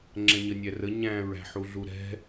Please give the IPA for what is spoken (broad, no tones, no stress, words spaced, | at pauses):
ŋ͡ǁɛ̃ɲənʲærə ɲæ̃ ɹæ̤ħuɮuɾɛ̤